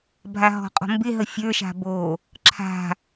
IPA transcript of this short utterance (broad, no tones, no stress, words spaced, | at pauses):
bʱaɦɔ̤qʼɔ̤mbɪ ɦəfʲə˞ ʃa̤bo | ǁʰa̤